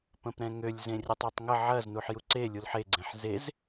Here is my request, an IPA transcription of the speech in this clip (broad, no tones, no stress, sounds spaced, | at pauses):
p ə̃ p ɾ ɛ̃ ŋ ø lʲ z ẽ rʲ ə tˤ ɛ tˤ ŋ ə ʕ ɐ z n u ħ j u ǀ e lʲ u l ħ e ɡ͡ǀ ẽ ħ z e z